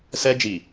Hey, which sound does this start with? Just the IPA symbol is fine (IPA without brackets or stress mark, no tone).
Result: s